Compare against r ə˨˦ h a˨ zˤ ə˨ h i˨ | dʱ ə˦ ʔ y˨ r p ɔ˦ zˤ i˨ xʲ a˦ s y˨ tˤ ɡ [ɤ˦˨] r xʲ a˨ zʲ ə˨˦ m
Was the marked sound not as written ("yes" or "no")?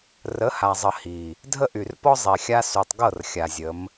no